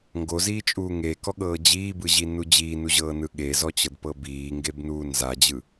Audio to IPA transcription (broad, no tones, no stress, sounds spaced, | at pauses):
ŋ ɡ o z iː t͡ʃʼ uː ŋ e k ɔ ɠ ɤː d͡ʑ iː b ɯ ʑ i n u d͡ʑ iː n u ʑ ɤː n ɯ ɠ e z ɔ t͡ɕ ɤ d p ɤ b iː ŋ ɡ e b n uː n z a d͡ʑ ɯ